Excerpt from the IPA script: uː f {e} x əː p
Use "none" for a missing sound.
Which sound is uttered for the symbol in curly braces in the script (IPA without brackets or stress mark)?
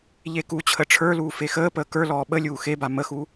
e